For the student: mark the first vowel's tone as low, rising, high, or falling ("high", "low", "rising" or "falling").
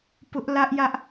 high